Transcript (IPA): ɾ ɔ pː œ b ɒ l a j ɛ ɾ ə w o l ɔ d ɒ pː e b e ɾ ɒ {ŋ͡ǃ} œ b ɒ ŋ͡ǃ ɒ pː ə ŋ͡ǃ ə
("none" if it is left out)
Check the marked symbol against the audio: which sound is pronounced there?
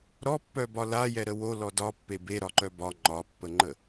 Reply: ǃ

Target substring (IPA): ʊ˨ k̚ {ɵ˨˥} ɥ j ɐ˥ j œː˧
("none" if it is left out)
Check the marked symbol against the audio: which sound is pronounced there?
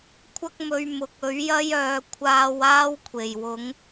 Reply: ɵ˨˥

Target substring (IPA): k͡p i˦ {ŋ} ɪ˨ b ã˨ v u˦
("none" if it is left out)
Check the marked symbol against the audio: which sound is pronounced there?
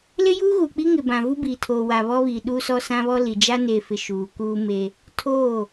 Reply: ŋ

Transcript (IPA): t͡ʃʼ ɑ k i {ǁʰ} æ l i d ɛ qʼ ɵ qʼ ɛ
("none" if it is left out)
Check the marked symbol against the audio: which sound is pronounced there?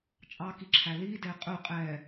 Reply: ǁʰ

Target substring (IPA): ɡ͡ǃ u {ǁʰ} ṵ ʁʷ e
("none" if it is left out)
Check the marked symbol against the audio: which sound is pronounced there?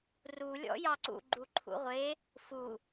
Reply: ǃʰ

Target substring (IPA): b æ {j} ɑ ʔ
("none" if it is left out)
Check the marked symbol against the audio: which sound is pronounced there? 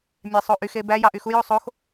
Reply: j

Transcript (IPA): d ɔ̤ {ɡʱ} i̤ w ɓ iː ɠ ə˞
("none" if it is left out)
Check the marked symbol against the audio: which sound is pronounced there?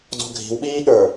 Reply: ɡʱ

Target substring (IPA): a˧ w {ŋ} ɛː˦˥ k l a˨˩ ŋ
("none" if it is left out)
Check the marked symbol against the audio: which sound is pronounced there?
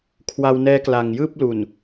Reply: n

